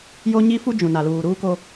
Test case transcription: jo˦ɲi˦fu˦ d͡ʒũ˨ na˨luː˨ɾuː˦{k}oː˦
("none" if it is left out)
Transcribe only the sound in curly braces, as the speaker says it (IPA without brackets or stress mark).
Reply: k